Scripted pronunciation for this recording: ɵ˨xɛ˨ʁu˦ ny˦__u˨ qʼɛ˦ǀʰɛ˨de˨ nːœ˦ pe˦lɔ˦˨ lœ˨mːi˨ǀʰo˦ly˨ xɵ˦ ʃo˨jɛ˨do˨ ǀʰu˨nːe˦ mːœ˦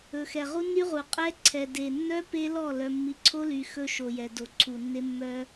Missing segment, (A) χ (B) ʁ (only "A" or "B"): B